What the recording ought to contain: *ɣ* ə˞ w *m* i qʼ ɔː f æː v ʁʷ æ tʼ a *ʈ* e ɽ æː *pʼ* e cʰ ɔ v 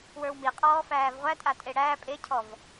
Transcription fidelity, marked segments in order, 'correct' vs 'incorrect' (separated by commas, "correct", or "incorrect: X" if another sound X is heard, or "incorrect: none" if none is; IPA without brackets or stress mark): incorrect: w, correct, incorrect: tʼ, correct